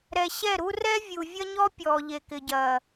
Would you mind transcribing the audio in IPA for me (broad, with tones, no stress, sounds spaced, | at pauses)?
ɾ ɛ˨ ɕ ɛ˦˨ ɾ u˦ r ɛ˦ vʲ u˨ vʲ ɐ˦ ɲ ɔ˦ pʲ ɔː˨ ʎ e˨ k ɪ˨ ɟ ɐː˨